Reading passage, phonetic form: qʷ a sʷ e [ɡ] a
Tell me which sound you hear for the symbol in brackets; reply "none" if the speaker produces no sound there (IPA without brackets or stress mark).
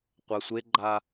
ɡ͡ǃ